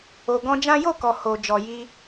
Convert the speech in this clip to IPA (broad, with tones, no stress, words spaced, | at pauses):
o˨ɡɔ̃˧d͡ʒã˦ jo˦˨kɔ˨ ho˨ d͡ʒɔ˨ji˧